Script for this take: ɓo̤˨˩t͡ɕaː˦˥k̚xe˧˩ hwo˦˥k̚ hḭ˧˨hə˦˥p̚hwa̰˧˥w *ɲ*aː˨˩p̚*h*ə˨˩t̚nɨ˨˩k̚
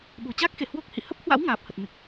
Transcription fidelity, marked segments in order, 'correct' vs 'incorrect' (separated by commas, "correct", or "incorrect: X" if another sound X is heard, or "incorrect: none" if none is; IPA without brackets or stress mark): incorrect: ŋ, correct